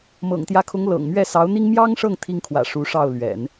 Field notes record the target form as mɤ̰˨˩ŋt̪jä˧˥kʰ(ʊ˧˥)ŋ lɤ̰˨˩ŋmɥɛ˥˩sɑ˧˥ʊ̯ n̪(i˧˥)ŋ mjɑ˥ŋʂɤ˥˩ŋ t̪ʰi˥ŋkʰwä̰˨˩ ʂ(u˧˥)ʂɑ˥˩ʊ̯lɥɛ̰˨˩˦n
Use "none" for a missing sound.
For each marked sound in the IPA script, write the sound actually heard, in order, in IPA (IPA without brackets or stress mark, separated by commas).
ʊ˧˥, i˥, u˧˥